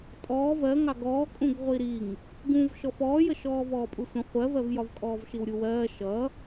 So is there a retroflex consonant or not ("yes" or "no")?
no